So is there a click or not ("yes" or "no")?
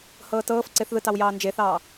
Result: yes